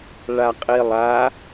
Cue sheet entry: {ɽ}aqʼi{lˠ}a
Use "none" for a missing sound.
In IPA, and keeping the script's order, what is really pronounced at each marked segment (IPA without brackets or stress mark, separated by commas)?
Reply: ɭ, lˠ